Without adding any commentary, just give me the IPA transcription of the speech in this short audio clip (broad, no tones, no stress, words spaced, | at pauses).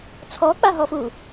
t͡sʰɔk͡paɦɔfu